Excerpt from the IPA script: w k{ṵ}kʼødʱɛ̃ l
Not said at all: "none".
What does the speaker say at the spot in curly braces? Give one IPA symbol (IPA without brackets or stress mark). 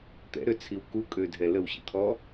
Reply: u